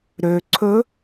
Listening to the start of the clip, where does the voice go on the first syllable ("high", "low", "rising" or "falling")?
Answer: low